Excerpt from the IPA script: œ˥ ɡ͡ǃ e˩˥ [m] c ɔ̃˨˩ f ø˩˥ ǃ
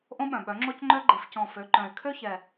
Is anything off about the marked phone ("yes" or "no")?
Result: yes